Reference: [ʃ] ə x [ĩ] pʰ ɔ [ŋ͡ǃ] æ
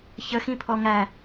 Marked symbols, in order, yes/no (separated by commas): no, yes, no